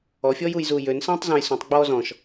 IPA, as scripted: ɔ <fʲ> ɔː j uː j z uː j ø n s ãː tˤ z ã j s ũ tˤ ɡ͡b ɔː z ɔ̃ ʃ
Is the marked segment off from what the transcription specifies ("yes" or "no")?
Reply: no